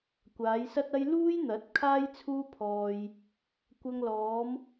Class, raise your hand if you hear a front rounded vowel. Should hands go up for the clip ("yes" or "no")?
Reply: no